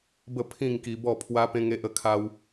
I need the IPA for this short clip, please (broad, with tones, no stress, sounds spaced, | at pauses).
b ə˥˧ pʰ ĩ˥˧ ŋ k i˧ b ɔ˥˧ pʰ w a˦ p ẽ˦ ŋ e˦ ʔ ə˥˧ kʰ a˦ w